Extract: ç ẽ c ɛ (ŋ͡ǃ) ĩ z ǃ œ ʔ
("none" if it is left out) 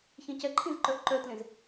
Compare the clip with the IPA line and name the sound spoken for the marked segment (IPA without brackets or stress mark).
ǃʰ